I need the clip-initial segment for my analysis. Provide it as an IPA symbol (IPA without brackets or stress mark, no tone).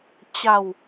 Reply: t͡ɕ